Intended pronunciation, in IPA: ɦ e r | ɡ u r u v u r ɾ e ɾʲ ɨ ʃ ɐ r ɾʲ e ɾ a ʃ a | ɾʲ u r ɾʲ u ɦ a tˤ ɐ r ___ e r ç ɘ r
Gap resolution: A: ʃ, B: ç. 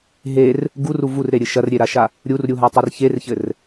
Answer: B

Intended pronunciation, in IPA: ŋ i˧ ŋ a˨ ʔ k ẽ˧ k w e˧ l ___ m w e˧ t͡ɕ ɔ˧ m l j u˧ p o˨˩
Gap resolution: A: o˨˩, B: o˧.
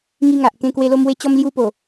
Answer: B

